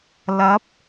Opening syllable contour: rising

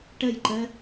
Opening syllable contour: falling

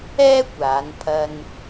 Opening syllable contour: high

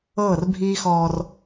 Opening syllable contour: falling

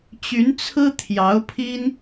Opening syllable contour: rising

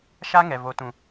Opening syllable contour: high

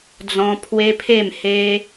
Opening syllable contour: high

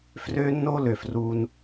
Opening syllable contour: high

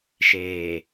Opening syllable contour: low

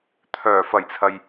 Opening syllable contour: low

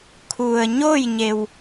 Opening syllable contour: low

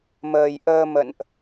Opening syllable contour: low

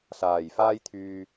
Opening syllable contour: low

